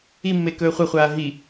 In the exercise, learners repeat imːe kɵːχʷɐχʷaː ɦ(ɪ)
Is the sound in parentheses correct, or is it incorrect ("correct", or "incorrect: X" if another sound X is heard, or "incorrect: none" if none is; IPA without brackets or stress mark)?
incorrect: i